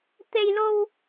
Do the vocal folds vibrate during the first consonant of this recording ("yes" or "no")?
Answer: no